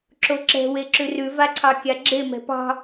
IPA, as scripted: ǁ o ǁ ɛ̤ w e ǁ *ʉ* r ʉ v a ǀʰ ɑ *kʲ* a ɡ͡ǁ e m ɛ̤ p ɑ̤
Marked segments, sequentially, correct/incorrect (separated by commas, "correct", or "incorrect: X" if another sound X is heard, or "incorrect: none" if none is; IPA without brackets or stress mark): correct, correct